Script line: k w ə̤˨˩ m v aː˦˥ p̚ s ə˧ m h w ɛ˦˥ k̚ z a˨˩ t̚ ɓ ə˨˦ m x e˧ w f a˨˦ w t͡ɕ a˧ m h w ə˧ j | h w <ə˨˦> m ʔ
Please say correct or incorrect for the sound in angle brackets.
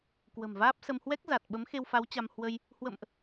incorrect: ə̰˧˨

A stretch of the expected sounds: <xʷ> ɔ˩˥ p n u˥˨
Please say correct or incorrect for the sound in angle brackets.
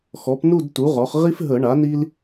incorrect: x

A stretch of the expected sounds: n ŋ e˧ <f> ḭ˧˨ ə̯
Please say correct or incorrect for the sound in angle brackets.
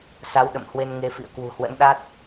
correct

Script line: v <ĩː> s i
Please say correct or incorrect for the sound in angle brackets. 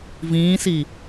correct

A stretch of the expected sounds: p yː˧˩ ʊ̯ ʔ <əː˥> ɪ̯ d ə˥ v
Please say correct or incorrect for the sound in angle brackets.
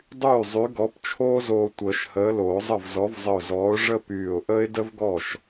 correct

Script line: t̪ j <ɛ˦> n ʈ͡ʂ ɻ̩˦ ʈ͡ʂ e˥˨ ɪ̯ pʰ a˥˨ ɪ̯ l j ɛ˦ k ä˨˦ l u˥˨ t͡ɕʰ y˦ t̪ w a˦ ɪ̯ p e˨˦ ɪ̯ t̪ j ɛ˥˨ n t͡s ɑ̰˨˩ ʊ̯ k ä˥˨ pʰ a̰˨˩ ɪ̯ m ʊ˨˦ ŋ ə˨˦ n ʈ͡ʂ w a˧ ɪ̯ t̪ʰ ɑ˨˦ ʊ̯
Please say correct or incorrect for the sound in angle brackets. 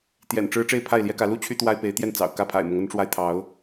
incorrect: ɛ̰˨˩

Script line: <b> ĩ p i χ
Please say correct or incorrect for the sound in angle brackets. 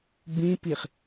correct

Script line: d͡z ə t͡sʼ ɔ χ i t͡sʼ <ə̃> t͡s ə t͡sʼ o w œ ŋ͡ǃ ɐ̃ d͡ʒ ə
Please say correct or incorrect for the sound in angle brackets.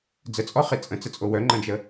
correct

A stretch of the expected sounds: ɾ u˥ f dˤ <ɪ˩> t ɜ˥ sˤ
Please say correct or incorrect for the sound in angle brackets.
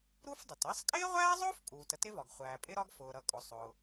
correct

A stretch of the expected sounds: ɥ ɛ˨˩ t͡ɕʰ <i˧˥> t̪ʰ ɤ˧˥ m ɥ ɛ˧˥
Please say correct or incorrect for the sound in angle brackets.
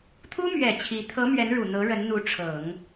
correct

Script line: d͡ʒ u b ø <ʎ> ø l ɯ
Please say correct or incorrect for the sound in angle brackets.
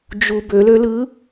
incorrect: l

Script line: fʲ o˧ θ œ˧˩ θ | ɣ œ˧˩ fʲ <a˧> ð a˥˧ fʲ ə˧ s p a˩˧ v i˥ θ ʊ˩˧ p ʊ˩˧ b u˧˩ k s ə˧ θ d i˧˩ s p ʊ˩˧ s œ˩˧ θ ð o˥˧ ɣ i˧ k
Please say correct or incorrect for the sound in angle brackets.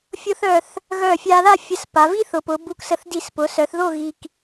correct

